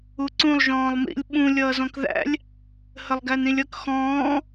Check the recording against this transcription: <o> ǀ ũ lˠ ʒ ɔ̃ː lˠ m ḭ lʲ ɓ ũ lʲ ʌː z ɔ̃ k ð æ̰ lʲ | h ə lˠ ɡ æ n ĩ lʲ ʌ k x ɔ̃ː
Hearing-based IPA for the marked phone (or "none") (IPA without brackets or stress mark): u